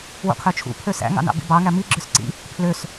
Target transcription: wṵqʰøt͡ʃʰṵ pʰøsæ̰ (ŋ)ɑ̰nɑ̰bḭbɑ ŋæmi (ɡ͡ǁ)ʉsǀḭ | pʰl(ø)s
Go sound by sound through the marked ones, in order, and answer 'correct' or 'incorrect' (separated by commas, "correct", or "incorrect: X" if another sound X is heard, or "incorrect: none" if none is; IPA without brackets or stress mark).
correct, correct, correct